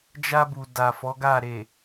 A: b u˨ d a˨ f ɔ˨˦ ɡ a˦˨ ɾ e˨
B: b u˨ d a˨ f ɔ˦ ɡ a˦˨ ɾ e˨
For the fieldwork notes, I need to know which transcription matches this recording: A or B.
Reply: A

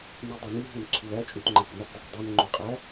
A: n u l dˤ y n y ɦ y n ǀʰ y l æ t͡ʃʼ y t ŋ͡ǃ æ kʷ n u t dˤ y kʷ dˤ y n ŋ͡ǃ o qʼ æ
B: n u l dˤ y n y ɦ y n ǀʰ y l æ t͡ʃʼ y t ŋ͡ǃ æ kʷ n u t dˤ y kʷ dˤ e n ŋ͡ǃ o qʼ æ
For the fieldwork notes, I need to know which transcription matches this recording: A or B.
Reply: B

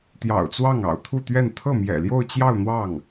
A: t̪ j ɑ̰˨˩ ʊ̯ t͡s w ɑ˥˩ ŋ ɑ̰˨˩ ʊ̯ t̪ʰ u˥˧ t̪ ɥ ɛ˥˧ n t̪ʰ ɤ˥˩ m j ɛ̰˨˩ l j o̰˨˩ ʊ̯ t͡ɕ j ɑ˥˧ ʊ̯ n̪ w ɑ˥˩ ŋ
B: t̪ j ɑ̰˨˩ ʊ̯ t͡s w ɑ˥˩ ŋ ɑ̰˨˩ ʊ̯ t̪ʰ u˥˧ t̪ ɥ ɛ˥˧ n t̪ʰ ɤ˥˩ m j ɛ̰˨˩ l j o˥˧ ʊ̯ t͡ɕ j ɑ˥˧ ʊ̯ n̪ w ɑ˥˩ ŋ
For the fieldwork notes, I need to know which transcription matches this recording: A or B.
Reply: B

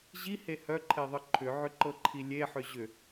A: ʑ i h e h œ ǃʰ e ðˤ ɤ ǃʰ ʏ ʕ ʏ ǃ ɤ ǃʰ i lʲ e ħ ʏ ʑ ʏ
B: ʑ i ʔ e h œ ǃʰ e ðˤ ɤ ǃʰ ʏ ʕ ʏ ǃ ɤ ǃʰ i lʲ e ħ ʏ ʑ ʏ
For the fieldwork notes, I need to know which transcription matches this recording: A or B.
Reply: A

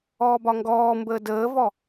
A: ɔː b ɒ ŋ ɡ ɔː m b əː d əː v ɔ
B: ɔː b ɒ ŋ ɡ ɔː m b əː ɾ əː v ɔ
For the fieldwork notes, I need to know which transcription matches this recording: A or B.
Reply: A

